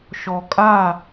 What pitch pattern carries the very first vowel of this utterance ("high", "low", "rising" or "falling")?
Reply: low